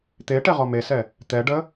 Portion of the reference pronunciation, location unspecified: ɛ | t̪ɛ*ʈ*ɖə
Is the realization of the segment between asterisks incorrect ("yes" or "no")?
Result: yes